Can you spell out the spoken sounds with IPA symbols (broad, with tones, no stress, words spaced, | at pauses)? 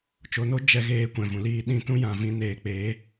t͡ʃo˧no˦ d͡ʒɛ˧ɣeː˧ kʷɛ̃˨vũ˨liː˧ɗĩ˧ tũ˦jã˨ vĩ˧neː˨k͡peː˨˦